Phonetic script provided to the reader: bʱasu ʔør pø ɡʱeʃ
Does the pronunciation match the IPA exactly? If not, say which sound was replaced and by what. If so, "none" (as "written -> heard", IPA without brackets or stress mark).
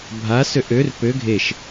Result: u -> ø